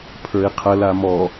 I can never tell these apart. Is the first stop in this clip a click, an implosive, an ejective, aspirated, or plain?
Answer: aspirated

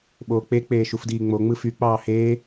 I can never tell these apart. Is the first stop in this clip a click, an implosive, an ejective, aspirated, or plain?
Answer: implosive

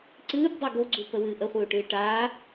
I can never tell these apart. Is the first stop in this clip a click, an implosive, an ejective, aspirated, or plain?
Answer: click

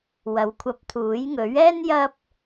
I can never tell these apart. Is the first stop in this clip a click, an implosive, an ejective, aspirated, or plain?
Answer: aspirated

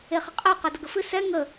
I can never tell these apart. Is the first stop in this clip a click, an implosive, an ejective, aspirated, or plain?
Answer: ejective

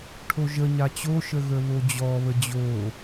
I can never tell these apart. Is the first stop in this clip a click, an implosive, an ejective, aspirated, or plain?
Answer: aspirated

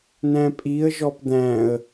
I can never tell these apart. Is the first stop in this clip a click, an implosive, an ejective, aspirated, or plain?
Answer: ejective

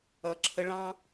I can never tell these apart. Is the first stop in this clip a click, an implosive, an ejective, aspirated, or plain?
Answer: click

